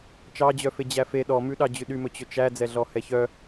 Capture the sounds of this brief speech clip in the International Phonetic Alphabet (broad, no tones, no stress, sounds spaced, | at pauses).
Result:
t͡ʃ ɑ d͡ʑ œ f e d͡ʑ æ f e ɗ ɔ m ʉ ɗ ɑ d͡ʑ ʉ ɗ y m ɵ t͡ɕ ɵ t͡ʃ æ d͡z ɛ ɮ ɔ h ɛ ç œ